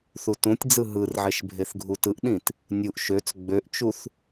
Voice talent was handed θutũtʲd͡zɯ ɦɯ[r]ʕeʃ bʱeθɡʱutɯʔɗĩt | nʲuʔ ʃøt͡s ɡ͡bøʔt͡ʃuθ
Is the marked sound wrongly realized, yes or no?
no